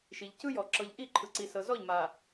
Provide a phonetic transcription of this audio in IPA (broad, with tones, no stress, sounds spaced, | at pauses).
ʃ i˨ ʎ c ɯ˦ j ɔ˨ ǁ ɤ˨ ʎ ʔ i˦˨ ǃʰ ɯ˨ ǀ i˨ s ɤ˨ z ɔ˦˨ ʎ m a˨